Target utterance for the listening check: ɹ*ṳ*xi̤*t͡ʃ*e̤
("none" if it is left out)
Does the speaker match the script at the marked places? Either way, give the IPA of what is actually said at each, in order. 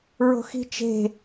o̤, t͡ʃ

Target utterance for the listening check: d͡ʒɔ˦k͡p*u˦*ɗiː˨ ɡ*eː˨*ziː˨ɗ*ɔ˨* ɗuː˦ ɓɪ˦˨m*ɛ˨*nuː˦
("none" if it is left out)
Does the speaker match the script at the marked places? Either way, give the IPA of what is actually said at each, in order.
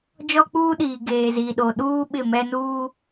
uː˦, eː˨, o˨, ɛ˦

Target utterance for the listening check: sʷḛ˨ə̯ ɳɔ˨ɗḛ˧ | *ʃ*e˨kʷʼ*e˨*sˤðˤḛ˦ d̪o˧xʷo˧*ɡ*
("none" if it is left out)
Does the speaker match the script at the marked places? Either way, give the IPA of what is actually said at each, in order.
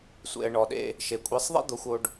ʃ, e˨˦, ɖ

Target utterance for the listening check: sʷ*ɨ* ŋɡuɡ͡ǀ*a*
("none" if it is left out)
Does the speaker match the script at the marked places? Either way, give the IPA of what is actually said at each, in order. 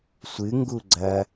ɨ, ɐ

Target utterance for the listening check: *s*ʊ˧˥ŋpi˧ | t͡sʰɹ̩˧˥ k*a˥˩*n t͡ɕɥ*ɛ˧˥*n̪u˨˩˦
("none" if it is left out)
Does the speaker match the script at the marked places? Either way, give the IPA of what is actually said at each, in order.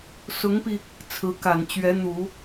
s, a˨˩, ɛ˧˥

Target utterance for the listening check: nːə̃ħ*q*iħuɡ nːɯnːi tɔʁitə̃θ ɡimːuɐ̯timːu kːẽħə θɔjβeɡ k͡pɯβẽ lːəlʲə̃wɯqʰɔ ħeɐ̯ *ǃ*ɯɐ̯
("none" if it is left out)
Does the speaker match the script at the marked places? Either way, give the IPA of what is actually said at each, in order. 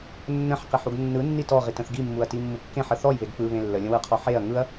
q, ŋ

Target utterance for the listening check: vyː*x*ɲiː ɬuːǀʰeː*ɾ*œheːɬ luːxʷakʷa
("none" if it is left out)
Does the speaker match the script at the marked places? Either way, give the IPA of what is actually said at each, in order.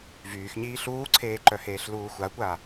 x, ǃ

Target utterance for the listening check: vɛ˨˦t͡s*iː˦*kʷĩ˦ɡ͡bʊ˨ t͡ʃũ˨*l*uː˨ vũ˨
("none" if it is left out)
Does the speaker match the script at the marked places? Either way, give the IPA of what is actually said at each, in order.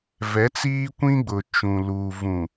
iː˦, l

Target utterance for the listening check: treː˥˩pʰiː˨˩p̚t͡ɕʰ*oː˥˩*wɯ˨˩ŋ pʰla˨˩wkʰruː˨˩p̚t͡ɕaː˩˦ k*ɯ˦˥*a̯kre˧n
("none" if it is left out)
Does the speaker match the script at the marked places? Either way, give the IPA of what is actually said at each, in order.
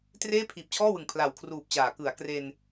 ɔː˥˩, ɯ˩˦

